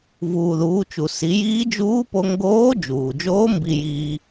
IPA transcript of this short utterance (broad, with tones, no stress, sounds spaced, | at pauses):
v uː˩ ð uː˩˧ t͡ʃ u˩ s i˩˧ j iː˧˥ d͡ʒ uː˧˥ p o˧ ŋ ɡ oː˧˥ d͡ʒ uː˩ d͡ʒ oː˧˥ m b i˧ j iː˧